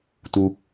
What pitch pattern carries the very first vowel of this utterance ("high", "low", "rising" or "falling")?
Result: low